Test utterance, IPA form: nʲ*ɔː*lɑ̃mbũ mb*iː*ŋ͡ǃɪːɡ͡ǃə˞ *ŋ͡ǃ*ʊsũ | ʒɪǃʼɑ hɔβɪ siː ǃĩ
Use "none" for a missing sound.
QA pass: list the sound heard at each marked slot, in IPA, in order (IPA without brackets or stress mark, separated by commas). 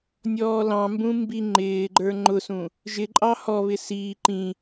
ɔː, i, ŋ͡ǃ